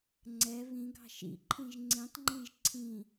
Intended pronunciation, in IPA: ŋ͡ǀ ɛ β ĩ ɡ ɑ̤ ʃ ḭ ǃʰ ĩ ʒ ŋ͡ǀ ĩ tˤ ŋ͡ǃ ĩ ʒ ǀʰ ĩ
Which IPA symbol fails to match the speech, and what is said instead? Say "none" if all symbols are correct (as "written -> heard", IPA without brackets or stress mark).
none